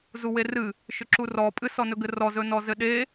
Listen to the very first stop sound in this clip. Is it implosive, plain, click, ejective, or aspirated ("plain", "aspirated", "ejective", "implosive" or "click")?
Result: click